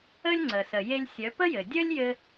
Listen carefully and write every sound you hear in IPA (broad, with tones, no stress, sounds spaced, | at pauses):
ə˥ lʲ ŋ͡ǀ ə˩ s ə˩ j e˧ lʲ sʲ œ˩˧ p ə˥ j ɘ˩ dʲ œ˥ lʲ j ɘ˧